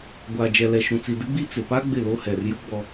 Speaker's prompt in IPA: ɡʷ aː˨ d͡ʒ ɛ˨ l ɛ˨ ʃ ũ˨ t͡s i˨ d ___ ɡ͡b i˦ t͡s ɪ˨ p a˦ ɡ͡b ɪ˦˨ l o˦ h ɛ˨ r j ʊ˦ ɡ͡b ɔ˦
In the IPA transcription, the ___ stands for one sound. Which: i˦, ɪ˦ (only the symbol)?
ɪ˦